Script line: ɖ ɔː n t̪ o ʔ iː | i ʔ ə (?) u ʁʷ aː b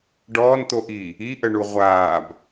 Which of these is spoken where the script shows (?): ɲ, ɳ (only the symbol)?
ɳ